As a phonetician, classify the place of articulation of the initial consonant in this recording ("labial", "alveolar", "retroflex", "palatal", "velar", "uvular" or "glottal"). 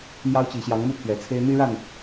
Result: labial